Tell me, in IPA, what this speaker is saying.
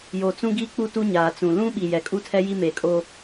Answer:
j o˨ t͡s ũ˦ ɡ i˦ k͡p u˦ t u˦ ɲ aː˨ t͡s ũ˨ l ũ˦ ɓ i˨ j ɛ˨ kʼ u˦ tʰ ɛ˦ j i˦ m eː˨ kʼ o˦

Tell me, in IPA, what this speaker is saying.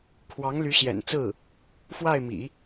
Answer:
kʰ w ɑ˧˥ ŋ l y˧˥ ɕ j ɛ̰˨˩ n t͡s ɹ̩˥˩ | f w a˥˩ ɪ̯ m ḭ˨˩˦

